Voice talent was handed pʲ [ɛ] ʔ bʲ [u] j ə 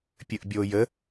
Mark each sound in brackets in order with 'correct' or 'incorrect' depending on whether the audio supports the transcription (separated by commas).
incorrect, incorrect